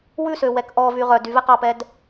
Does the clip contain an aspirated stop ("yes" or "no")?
no